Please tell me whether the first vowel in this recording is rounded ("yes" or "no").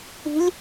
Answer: no